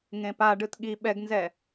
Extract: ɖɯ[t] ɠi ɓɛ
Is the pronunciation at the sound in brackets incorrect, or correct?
correct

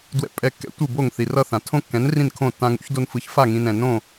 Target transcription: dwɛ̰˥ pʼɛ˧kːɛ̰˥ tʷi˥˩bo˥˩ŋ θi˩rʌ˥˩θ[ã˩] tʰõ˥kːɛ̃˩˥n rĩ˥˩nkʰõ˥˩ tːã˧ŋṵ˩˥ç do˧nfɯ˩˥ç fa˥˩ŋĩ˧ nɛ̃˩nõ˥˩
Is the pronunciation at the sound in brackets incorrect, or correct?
correct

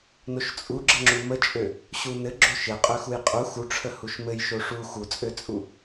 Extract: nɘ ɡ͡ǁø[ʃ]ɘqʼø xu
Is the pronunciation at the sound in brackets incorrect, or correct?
correct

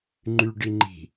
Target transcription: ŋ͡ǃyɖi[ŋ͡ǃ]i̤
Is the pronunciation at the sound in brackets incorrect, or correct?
correct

